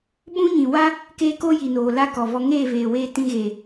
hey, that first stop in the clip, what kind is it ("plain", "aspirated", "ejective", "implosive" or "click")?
implosive